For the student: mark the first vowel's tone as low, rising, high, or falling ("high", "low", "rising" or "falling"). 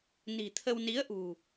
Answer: low